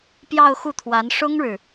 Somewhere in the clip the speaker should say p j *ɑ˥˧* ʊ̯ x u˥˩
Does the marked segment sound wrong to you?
no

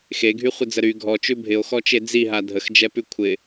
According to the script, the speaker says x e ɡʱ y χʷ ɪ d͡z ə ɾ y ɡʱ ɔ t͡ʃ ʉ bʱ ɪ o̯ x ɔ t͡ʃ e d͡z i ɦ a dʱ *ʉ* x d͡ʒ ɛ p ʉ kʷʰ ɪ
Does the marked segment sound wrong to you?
yes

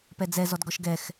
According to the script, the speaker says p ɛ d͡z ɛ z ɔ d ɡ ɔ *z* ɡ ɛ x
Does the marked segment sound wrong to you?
yes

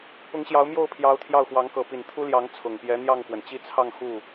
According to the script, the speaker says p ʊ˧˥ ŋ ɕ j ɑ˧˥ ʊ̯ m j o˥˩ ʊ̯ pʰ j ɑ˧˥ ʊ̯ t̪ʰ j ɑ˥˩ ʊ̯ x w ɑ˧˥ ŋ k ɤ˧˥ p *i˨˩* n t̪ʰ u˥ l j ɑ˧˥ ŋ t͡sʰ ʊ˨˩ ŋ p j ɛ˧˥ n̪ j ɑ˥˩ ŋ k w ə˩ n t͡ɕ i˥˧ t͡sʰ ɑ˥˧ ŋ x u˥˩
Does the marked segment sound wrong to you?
no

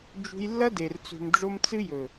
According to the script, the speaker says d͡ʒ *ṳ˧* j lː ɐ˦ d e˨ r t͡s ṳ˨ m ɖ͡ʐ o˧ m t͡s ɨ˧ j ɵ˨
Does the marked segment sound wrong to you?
no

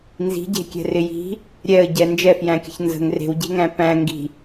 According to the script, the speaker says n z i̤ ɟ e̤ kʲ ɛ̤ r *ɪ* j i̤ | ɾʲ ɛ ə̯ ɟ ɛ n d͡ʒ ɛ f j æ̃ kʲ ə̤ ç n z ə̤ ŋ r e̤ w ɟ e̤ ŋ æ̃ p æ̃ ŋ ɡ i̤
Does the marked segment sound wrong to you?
no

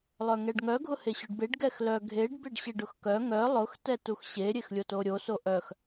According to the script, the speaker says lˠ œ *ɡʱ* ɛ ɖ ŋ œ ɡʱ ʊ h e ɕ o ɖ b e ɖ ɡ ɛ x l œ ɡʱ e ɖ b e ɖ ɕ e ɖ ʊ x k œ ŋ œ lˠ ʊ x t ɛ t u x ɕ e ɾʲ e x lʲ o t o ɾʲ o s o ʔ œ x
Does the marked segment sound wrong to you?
yes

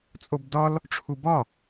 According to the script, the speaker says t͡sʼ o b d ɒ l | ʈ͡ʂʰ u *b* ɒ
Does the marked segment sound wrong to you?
no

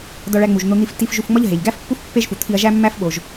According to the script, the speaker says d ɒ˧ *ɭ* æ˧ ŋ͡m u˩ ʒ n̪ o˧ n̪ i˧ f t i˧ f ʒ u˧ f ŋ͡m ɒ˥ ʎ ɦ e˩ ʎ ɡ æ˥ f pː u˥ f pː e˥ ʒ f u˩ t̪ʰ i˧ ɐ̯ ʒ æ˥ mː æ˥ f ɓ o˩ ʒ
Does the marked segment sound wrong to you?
no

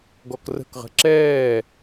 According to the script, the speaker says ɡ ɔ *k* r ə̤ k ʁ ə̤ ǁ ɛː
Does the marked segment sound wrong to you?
no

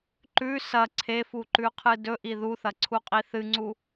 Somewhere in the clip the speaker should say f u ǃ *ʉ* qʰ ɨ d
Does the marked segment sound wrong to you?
no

